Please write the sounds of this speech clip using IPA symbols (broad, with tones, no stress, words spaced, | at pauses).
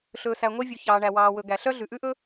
ɬɵː˨sæ˨ŋʷe˦vʲu˨ çɑː˨ɳæ˨ wɑː˨wɵ˨ ɡæ˨ɬœ˦ ɮʉ˨ʔʉ˦ʔɵ˦